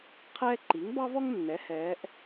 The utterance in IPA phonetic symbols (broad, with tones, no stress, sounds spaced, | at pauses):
qʰ ɛː˦ ǃ i˩˥ ŋ b ɑ˦ v ɔ˦ ŋ nː ɛ˩˥ h ɛː˩˧ ʔ